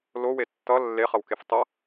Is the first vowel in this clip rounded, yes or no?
yes